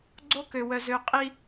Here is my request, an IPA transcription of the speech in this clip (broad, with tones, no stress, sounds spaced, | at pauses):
ɡ͡ǀ o˦ k ø˨ w œ˨ z ø˨ qʼ i˦